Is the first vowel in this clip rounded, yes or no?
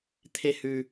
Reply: no